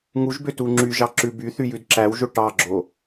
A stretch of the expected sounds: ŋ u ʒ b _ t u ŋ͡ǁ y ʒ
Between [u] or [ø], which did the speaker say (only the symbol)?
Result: ø